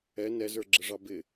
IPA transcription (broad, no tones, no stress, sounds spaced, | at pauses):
ɛ n ɛ z ə˞ ɡ͡ǁ ə ʐ ɑ b ɪ